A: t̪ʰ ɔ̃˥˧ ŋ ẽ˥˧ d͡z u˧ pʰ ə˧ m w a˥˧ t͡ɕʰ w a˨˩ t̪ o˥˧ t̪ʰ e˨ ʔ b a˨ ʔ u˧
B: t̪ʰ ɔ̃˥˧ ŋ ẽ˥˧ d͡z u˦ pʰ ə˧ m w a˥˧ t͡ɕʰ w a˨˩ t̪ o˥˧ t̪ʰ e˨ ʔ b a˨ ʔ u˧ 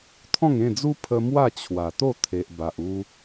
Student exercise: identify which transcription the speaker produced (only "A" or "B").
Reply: B